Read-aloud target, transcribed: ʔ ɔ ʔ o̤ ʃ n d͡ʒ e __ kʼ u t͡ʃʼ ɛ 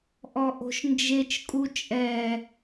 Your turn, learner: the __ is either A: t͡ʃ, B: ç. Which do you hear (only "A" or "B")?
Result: A